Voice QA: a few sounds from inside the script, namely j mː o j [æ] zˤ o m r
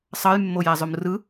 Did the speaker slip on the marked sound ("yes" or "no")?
no